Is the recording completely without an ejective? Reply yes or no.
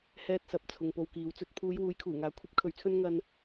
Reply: yes